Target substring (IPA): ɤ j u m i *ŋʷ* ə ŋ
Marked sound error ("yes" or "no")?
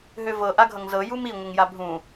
no